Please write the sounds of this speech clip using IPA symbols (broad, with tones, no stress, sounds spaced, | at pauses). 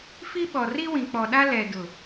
f i˦ ɓ ɔ˨ r i˦ w ĩ˨ k͡p ɔ˨ ɗ a˦ l ɛ˨ d ʊ˨